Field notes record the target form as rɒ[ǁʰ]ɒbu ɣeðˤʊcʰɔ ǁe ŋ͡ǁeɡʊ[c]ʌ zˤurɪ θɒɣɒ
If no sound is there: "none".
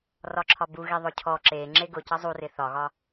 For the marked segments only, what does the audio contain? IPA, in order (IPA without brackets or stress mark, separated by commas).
ǁʰ, c